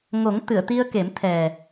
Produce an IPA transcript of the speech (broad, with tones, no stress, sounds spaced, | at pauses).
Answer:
ŋ o˨˩˦ ŋ t̪ ɨ˨˩˨ ə̯ t̪ i˧ ə̯ k e˨˩˦ m t̪ʰ ɛ˨˩